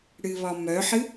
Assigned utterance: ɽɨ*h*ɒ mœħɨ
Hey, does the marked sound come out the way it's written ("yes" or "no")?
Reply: no